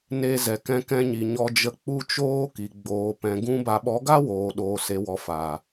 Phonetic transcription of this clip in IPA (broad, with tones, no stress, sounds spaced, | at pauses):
n e˧ z ɛ˨ k ɛ̃˧ k ɛ̃˧ ɲ i˨ ɲ ɔ˧ d͡ʒ ə˧ k͡p u˧ t͡ʃ oː˧ k i˨ ɡ͡b oː˨ p ɛ̃˨ ɡ ũ˧ b a˨ ɓ ɔ˨˦ ɡ a˦ w oː˨ ɗ oː˨ s e˨ w ɔ˨ f aː˨